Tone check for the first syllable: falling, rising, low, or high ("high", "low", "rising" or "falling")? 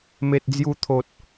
low